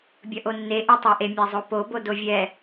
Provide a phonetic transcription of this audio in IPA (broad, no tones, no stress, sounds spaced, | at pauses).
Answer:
bʲ ʌ ʔ o nː e ʔ e tˤ ɑ ʔ e mʲ a zˤ o p o b o d o vʲ ɛ